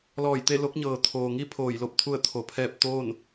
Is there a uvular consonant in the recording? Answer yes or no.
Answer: no